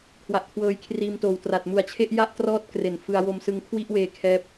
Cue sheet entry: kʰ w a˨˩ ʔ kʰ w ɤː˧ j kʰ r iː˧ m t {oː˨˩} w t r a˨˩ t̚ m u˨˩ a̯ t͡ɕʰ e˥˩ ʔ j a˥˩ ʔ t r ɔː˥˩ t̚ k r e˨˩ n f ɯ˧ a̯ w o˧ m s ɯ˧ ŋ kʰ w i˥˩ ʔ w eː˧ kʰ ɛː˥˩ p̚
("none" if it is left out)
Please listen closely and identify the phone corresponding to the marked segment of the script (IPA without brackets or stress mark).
oː˨˩